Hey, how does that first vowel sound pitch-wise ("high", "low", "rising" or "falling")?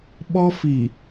high